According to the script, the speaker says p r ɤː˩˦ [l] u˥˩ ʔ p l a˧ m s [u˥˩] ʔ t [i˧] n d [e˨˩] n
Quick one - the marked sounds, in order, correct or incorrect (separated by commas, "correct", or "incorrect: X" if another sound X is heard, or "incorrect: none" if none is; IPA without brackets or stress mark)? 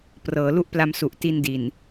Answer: correct, incorrect: u˨˩, correct, incorrect: i˨˩